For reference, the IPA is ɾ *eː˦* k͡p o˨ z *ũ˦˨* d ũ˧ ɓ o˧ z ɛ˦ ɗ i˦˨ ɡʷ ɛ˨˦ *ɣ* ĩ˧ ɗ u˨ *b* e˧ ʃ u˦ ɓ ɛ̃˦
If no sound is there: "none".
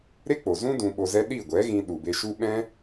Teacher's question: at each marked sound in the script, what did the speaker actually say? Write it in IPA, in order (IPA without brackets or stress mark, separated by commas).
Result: e˦, ũ˦, ɣ, b